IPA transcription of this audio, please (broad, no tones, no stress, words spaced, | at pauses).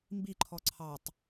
mbiǃʰɔ ǀʰɑtˤ